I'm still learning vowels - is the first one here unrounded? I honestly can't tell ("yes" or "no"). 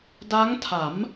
yes